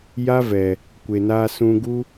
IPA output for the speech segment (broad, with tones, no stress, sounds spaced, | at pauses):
j a˦ v ɛ˨ | kʷ e˨ n aː˧ s ũ˧ ɡ u˦